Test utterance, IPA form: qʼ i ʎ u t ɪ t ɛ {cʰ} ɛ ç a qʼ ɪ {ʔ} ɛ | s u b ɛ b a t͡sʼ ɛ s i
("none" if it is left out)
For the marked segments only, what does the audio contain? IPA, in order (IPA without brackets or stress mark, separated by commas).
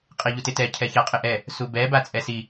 cʰ, ʔ